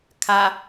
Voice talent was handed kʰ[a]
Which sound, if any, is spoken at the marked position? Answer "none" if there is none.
a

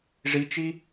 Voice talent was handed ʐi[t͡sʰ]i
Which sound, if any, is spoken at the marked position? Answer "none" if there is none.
t͡ʃ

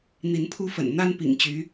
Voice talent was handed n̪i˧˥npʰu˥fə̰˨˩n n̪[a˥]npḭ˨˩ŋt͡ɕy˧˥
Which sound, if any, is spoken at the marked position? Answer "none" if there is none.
a˥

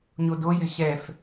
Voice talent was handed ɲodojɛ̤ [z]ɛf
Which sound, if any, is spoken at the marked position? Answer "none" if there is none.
ɕ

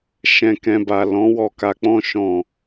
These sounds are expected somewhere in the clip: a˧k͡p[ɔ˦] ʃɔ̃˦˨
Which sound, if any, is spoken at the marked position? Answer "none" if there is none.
ɔ̃˦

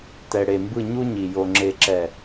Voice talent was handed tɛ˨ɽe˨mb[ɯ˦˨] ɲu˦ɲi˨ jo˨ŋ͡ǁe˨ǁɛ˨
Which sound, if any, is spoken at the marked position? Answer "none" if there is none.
ɯ˦˨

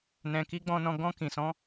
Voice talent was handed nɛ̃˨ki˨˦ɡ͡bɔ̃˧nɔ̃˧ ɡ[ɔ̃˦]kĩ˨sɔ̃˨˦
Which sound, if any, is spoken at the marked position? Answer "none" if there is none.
ɔ̃˧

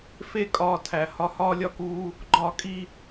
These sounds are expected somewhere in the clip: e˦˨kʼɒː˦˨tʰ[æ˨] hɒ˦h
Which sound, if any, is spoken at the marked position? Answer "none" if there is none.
æ˨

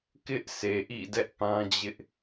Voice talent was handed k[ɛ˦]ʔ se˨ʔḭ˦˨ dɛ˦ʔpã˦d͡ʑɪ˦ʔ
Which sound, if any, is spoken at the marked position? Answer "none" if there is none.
ɪ˦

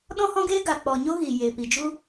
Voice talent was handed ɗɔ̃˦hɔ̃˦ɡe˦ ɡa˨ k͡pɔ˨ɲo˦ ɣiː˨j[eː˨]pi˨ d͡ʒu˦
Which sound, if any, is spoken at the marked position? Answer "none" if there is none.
e˨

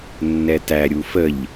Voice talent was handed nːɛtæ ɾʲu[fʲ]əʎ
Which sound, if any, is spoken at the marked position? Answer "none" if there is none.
f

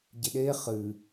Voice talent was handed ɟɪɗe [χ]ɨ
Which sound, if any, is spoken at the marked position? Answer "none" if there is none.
χ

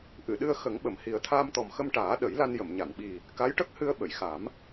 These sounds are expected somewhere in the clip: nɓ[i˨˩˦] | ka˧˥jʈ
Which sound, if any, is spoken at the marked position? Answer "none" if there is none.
i˨˩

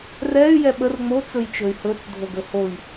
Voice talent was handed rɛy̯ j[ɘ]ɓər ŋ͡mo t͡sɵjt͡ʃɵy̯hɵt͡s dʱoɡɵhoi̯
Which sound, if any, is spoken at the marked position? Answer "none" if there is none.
ɛ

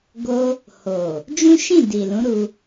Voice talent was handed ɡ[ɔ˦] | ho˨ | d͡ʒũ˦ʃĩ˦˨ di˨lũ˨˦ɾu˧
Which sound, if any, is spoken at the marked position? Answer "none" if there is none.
o˦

